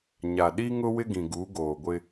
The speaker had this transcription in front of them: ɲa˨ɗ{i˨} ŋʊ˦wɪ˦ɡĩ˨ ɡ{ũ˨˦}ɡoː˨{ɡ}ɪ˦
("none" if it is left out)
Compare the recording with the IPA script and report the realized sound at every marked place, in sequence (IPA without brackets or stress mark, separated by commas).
i˦, u˨˦, ɡʷ